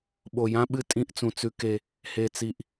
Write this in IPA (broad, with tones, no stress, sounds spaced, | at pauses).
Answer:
ɓ o˨ j ã˦ ɓ ɨ˦ tʼ ĩ˦ ʔ t͡s ũ˨ t͡s ʉ˦ k e˦ | h e˨ t͡s i˨ ʔ